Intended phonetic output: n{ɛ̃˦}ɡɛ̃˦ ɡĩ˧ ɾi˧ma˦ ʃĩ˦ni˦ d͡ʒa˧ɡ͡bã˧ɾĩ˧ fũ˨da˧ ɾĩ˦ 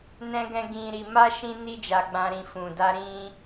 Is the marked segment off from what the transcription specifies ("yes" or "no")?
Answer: no